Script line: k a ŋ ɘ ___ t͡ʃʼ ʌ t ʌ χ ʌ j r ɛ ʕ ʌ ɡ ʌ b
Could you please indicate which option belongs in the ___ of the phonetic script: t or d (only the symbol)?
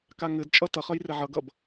d